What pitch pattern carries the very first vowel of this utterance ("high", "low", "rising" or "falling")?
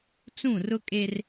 falling